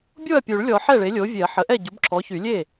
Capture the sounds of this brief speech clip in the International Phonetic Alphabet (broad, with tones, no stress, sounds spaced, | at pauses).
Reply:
bʲ o˥˩ ɐ̯ pʲ u˨˩˦ ɭ lʲ ɔ˨˩˦ ħ ɛ˥˩ ɭ e˩˥ lʲ o˩˥ vʲ e˨˩˦ ɐ̯ ħ ə˩˥ ʔ ɛ˥˩ ɟ u˩˥ b ǁʰ ɔ˩˥ ç y˨˩˦ lʲ e˥˩